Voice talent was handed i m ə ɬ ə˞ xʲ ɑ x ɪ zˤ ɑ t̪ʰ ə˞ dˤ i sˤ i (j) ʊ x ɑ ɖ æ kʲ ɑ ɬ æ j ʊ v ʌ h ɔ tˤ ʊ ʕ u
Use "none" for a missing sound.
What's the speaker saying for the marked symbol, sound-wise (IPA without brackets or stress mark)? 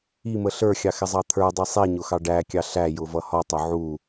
ɲ